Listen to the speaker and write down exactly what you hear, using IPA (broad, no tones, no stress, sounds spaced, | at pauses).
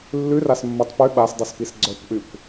lː ʉ r a s mː o tˤ p ʉ ɓ a s dˤ i s p i s ɡ͡ǀ œ kʷ ʔ y kʷ